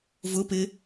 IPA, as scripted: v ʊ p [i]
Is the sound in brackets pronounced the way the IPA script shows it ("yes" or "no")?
no